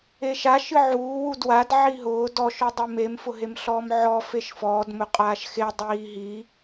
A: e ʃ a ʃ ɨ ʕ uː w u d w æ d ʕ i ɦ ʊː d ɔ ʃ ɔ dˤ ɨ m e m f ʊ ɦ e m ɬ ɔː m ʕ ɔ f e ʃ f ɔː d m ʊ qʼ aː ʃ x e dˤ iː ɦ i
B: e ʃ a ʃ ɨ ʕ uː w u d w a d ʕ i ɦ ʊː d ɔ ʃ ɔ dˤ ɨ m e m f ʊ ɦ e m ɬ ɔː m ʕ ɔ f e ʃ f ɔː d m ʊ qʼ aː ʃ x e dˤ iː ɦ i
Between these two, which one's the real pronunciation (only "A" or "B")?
B